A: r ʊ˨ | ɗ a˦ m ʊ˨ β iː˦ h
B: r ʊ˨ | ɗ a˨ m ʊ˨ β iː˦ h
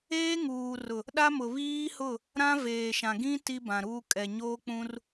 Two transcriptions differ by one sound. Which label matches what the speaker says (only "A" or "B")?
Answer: A